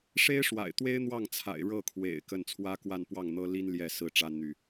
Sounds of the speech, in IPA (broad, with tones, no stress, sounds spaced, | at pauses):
ʂ e˥ ɪ̯ ʂ w a̰˨˩ ɪ̯ t̪ w e˥ ɪ̯ n̪ w ɑ˥˩ ŋ t͡sʰ a̰˨˩ ɪ̯ ɻ ɤ˥˩ kʰ w ḛ˨˩ ɪ̯ k ə˥˩ n t͡sʰ w ä˥ k w a˥˧ n p w ɑ˥˩ ŋ n̪ ɤ˥ l i˥ n l j ɛ˥˩ s ɹ̩˥ ʈ͡ʂ a˥ n n̪ y˨